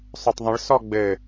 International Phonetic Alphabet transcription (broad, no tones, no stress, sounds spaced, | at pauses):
sˤ œ tˤ ðˤ ə̃ ɭ s ɔ ɡ͡b ɘ